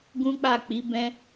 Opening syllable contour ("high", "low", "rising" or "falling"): high